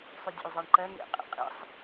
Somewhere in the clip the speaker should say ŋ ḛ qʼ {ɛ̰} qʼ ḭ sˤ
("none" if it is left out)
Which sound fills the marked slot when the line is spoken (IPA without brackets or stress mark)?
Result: ḛ